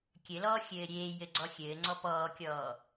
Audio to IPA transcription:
kʲ ɘ l ɔː xʲ ɘː ɾʲ eː j ɘ ɡ͡ǀ ɔ xʲ ɘː ŋ͡ǀ ɔ p ɔː kʲ ɔː

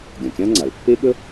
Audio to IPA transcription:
ɡʲ ɐ̃˩ kʲ ã˥ ŋ͡ǀ a˩ l pː e˥ ɠ ə˥

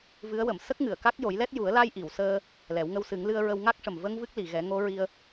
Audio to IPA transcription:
v ɨ˧˥ ə̯ w ə˨˩˨ m s ə˦˥ k̚ ŋ ɨ˨˩˨ ə̯ k a˦˥ k̚ j o˨˩˦ j l ɛ˦˥ t̚ j u˨˩˦ ə̯ l a˧ j ʔ i˨˩˨ w s əː˧ | l ɛ˨˩˦ w ŋ ə˧ w s ɨ˨˩˦ ŋ l ɨ˧ ə̯ ɹ ə˧ w ŋ a˦˥ k̚ ʂ ə˨˩ m v ə˧ ŋ v ɨ˦˥ k̚ l i˨˩˨ ɣ ɛ˨˩˦ ŋ o˧˥ ɹ i˧ ə̯

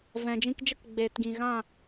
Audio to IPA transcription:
v ɛ̃˨ d͡ʒ ĩ˧ k d͡ʒ ə˦ k ɡ͡b eː˨ t ɡ ĩ˨ ɣ ã˦˨

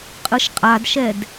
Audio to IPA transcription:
qʼ ɯ ʃ qʼ a d ʃ ɛ d

